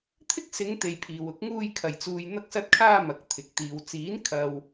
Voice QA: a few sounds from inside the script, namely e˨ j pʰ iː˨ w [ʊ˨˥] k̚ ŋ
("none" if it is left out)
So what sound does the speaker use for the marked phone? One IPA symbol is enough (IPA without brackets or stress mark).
ʊ˨˥